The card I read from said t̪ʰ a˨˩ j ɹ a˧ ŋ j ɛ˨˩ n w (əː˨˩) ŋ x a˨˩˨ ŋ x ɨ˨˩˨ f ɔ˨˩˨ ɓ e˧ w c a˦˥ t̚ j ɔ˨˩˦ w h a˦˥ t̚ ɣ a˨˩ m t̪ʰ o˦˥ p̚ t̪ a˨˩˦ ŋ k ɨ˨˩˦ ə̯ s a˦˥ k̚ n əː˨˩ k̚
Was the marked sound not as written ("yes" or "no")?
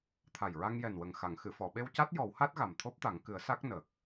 yes